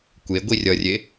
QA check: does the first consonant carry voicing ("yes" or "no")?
no